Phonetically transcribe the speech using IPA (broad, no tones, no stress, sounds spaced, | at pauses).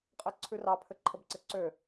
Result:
qʼ ɘ ǀʰ ʉ r ɑ pʰ ɘ ǃʰ ə b ǀ ɘ ǀ ø